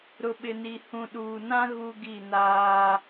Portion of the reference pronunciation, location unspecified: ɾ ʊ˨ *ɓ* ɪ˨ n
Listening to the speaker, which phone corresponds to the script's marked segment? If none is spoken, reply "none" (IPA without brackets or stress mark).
ɓ